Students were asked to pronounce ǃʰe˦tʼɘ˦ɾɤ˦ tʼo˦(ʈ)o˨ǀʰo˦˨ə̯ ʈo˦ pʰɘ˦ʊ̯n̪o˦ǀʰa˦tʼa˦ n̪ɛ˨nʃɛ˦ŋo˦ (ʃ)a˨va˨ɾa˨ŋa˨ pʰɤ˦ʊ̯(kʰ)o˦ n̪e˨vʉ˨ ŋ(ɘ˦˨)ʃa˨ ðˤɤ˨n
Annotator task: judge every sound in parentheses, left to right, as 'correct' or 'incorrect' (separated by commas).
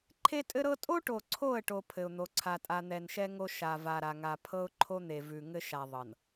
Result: correct, correct, incorrect, incorrect